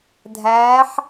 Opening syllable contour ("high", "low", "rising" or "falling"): rising